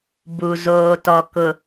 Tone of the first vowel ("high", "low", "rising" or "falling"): low